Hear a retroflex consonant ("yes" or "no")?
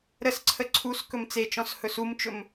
no